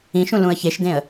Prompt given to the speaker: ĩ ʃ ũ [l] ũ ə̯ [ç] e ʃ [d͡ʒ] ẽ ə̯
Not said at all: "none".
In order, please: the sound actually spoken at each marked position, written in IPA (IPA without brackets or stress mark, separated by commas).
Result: l, ç, d